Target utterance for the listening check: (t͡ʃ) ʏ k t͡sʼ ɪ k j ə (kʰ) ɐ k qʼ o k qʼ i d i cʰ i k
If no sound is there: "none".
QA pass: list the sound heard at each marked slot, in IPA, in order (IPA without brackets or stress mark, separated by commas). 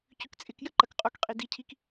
c, ǃ